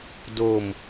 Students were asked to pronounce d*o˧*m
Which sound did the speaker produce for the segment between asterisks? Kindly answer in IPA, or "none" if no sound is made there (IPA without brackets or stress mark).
o˧